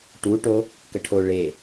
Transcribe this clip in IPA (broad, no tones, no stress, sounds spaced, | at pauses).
ʈ u ʈ o | k ə ʈʰ o ɭ e